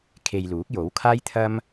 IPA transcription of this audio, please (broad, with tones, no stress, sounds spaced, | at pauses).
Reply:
kʰ e˧ j l uː˨˥ k̚ j o˨˥ w kʰ aː˥ j t̪ʰ ɐ˥ m